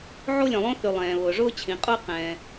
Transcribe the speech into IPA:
ʕ o˥ lʲ œ̃˩ lˠ õ˥ θ y˩ lˠ ɛ̃ː˩ β ʊː˩ ʐ ʊː˥ t͡ɕʰ ĩ˩ qʼ ʊː˥ q ɛ̃ː˩

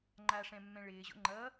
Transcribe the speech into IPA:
ŋ͡ǃ a ʂ ɛ̃ mː ɛ̃ ɭ ɪː ʑ o̰ ŋ͡ǃ ʌ

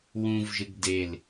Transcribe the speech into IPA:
w ũ v ʒ ɨ ɡ d e l

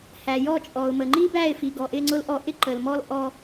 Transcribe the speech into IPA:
h æ˨ j ɔ˦˨ t͡ʃʼ ɔ˨ ʊ̯ m ə˨ ŋ͡ǃ i˦ b æ˦˨ ɪ̯ f i˨ ɡ ɔ˨ ʔ ɪ˦ ŋ͡ǀ ʊ˦ l ʔ ɔ˦ ʔ ɪ˦ ǃ ə˨ l m ɔ˦ l ʔ ɔ˦

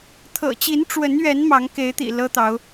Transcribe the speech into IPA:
t̪ʰ ɤ̰˨˩ t͡ɕ i˨˦ n ʈ͡ʂ w ə˨˦ n ɥ ɛ˨˦ n m ɑ˨˦ ŋ k e˨˦ ɪ̯ t̪ ḭ˨˩ l ɤ˦ t̪ ɑ˨˦ ʊ̯

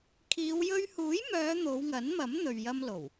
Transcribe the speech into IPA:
kʰ iː˨˧ w j ɵ˧ ɥ h uː˨˥ j m œː˨˧ n̪ o˨˧ w ŋ ɐ˨˥ n m ɐ˨˥ m n̪ ɵ˨ ɥ j ɐ˧ m l o˨˩ w

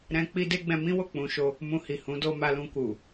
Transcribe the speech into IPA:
ɾ ɛ̃˧ k͡p i˦ d e˦ ɡ͡b ɛ̃˧ m ĩ˦ w o˦˨ k͡p ũ˧ ʃ o˧ | m ũ˧ h i˨ h ũ˨˦ d o˧ m a˧ l ũ˧ k u˨

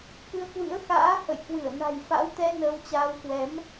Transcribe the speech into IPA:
k ɨ˧ ə̯ k w ɨ̰˧˥ ə̯ x a̰ː˧˥ h ə̰˧˨ j k w ɨ˧˩ ə̯ n a̤˨˩ j f a̰˧˥ w t̪ ɛ˧ n əː˧ w t͡ɕ aː˧ w k w ɛ˨˦ m

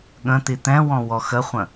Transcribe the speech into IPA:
ɠ ə̃ t̪ i t̪ ɛ̃ w ɔ̃ w ɔ x ə χʷ ə̃

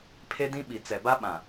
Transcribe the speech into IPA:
pʰ e˦ d ĩ˦ ɓ i˨ t͡s ɛ˨ b a˦ ɓ ã˨

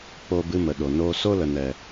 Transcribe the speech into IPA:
k͡p o˧ b ɨ˧ m ə˨ ɗ o˨ n oː˧ s o˦ l ə˨ n ɛ˨

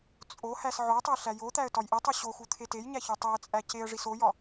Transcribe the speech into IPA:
t͡sʼ o h æ s ʕ o tˤ e ɬ æ j o t̪ æ ə̯ t ɒ j ʔ i tˤ u ɕ o x u t̪ʰ e t e j ɲ æ ç u tˤ u ə̯ t͡sʼ æ c e ə̯ ʐ i s o j ɒ

